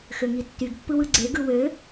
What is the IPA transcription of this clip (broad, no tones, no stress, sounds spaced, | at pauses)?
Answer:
x ø ŋ i tː y ɡ pː ɯ w ɯ ɡ͡ǀ e ɡ ɯ w ø